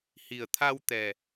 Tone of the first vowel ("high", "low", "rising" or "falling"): low